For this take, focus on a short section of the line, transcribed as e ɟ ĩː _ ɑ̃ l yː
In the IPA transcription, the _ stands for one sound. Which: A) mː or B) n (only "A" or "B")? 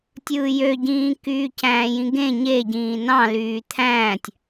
B